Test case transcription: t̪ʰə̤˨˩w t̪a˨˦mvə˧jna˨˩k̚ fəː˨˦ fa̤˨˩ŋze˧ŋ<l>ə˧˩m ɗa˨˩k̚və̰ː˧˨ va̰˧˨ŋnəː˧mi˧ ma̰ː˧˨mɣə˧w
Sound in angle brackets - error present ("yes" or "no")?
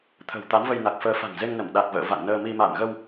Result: yes